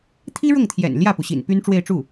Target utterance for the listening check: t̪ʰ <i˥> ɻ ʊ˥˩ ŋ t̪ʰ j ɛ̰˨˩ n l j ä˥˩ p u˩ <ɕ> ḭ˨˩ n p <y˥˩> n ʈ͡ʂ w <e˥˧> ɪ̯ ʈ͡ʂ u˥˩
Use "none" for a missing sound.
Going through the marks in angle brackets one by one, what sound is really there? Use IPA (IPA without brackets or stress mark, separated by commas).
i˥, ɕ, y˥, e˥˧